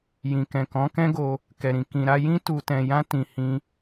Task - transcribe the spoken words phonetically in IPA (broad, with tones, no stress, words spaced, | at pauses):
jĩ˨kɛ̃˨ kɔ̃˨˦kɛ̃˦ɡo˧ | kɛ˨ɾĩ˨ kĩ˨ɾa˧jĩ˦ tu˧tɛ̃˧ jã˦ tĩ˧hĩ˦